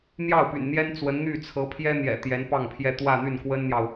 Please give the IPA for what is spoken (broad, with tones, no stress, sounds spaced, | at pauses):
n̪ j ɑ˥˩ ʊ̯ p y̰˨˩ n n̪ j ɛ˥ n t͡s w ə˧˥ n n̪ y˥˩ t͡sʰ ɤ˧˥ pʰ j ɛ˥ n̪ j ɛ̰˨˩ t̪ j ɛ˧˥ n p ɑ˥˩ ŋ pʰ j ɛ˥ t̪ w ä˥˧ n̪ y˥˩ n k w ə˥ n n̪ j ɑ˨ ʊ̯